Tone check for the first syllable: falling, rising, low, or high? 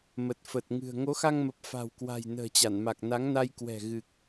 low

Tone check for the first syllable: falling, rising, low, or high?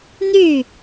falling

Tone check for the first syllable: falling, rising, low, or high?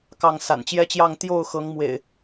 falling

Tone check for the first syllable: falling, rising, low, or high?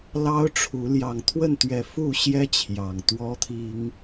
high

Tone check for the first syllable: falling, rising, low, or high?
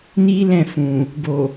high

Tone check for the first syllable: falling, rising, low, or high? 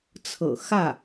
low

